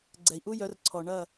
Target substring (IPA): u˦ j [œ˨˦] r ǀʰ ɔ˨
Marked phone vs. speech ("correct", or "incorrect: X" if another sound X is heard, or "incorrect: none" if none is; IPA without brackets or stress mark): correct